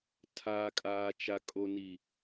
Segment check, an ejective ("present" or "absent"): present